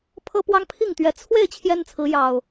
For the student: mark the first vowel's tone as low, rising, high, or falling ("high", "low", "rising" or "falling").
high